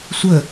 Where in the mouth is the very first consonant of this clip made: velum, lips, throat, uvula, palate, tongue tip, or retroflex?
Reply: tongue tip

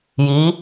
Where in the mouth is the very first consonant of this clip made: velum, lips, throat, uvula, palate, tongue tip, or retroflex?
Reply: palate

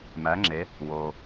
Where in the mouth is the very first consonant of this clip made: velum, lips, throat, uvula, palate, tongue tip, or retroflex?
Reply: lips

